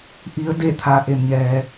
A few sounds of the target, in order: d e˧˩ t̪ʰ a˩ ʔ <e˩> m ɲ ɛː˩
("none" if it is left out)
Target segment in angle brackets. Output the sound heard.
e˩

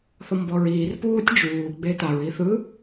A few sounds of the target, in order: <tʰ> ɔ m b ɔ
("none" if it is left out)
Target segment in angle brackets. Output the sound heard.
θ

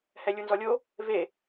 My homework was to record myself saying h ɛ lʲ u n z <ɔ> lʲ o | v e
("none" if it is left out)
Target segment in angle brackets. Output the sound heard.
ɔ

